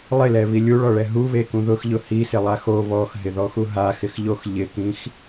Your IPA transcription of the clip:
lˠ ɪ l ɛ β i lʲ u ɭ ɔ ɭ ɛ ɦ u β e k ũ ð ʊ x ʎ ʊ h i s ɪ lˠ a x o β ɔ x ɦ ɪ ð ɔ x u ɦ a x ɪ x ʎ o x ʎ ɪ k ĩ x

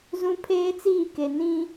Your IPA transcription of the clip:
z ũ˦ pʰ eː˦ t͡s iː˦˨ k e˨ n ĩ˦

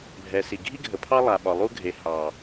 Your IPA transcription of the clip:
bʱ ɛ˨ s i˨ ɡʱ i˦ ɡʱ ə˨ pʰ ɑ˦ lˠ a˨ ɓ ɒ˨ lˠ u˦ ɡʱ e˨ h ɑ˨

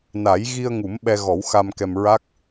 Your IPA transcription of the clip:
n a˨˩˦ j ɣ i˧ ə̯ ŋ u˨˩˦ m ɓ ɛ˧ ɣ ɔ˨˩˦ w x a˧ m k ɛ˧ m ɹ a˦˥ k̚

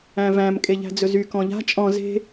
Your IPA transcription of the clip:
æ̃ v æ̃ m kʼ e ʎ æ̤ d͡z ɵ z y k ɔ̃ ʎ a̤ t͡ʃʼ ɔ̃ z e̤

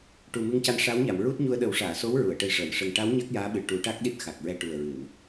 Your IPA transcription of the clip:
ʈ u˨˩ m ɨ˧ ŋ c a˧ n ʂ a˧˥ w ɲ a˨˩˨ m ɹ u˦˥ t̚ ɲ u˧ ə̯ ɗ ə˨˩˦ w ʂ aː˨˩˨ s o˧˥ w ɹ u˨˩˨ ə̯ ʈ ə˧ j ʂ əː˨˩˨ n ʂ ə˧ ŋ ʈ a˧˥ w ɲ a˦˥ k̚ j aː˧˥ ɓ ɨ˨˩ ʈ u˨˩˦ ʈ a˦˥ k̚ ɗ i˦˥ t̚ x a˨˩ k̚ ɹ ɛ˧ ʈ u˨˩ ə̯ ɹ ɨ˨˩˨ n

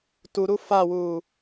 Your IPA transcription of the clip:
t u ɾ u f a w uː

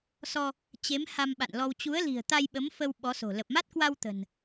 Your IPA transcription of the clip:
s ɔ˧ | t͡ɕ e˨˦ m h a˧ m ɓ a̰˧˨ n l ɔ˧ w t͡ɕ u˨˦ ə̯ l i̤˨˩ ə̯ t̪ a˧ j ɓ ə˨˦ m f ə˧ w ɓ ɔ˨˦ s o̤˨˩ l ə˨˩ p̚ m a˦˥ t̚ k w a˧ w t̪ ə̤˨˩ n

